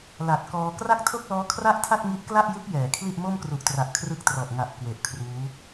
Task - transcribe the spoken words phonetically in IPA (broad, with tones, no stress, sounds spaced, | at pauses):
l a˨˩ t̚ k ɔː˧ k r a˥˩ k̚ tʰ o˥˩ k̚ l ɔː˦˥ kʰ r a˥˩ ʔ tʰ a˥˩ t̚ ŋ i˦˥ ʔ k l a˥˩ ʔ j ɯ˦˥ k̚ j ɛː˩˦ kʰ l i˥˩ ʔ m o˥˩ m k r u˨˩ ʔ t r a˨˩ ʔ kʰ r ɯ˦˥ k̚ t r ɔ˨˩ ʔ ŋ a˨˩ ʔ k w e˨˩ ʔ kʰ r uː˦˥